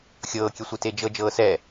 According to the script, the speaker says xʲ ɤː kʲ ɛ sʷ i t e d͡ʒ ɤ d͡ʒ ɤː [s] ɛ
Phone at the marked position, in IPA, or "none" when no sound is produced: s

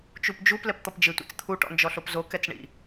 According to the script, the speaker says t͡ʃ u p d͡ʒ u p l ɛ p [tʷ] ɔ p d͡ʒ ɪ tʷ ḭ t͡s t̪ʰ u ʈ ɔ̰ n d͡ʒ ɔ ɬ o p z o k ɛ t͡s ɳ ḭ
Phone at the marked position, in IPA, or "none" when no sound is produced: t̪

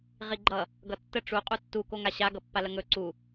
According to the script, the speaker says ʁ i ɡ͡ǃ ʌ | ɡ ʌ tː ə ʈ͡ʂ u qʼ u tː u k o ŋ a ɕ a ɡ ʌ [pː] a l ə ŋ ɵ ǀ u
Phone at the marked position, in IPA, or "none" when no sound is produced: pː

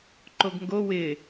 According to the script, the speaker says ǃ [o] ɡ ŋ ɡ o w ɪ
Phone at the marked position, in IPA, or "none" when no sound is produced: o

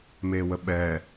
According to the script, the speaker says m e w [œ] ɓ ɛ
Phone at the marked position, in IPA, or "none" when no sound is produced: ə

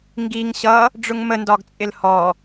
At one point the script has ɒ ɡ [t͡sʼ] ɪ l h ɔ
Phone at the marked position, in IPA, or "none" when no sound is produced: t͡sʼ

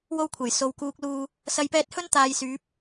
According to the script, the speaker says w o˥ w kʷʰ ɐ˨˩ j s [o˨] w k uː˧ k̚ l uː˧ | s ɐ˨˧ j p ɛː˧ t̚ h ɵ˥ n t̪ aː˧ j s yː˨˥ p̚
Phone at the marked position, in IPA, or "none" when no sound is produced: o˨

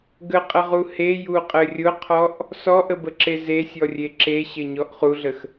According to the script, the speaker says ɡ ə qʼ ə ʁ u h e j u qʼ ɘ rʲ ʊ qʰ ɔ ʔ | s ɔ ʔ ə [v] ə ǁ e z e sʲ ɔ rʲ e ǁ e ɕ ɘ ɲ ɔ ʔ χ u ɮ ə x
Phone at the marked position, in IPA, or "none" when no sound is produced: b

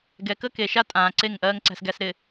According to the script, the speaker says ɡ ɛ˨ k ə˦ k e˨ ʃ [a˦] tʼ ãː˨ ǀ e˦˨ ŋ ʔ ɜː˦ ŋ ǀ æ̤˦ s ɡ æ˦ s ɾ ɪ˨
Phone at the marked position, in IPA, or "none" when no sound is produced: a˦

